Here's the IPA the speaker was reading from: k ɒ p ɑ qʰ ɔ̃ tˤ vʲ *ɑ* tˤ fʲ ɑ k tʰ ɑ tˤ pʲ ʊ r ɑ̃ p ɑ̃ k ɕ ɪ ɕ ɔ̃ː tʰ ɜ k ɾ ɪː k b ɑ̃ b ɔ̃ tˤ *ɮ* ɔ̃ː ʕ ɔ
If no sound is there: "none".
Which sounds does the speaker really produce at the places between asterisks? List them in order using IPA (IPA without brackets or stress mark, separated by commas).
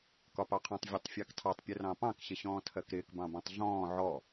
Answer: ɔ, ɮ